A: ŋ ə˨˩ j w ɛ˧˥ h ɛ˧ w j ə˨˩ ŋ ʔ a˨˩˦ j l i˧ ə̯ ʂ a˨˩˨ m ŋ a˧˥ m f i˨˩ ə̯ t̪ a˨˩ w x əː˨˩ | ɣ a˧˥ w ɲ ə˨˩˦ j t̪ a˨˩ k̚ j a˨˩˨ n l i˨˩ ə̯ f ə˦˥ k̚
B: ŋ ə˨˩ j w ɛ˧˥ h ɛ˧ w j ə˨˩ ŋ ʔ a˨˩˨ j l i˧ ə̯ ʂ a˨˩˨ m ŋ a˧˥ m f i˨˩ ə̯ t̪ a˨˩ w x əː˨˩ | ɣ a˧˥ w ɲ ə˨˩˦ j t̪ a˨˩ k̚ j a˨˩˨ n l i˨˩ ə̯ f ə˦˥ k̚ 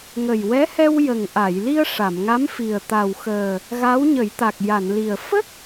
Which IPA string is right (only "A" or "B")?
B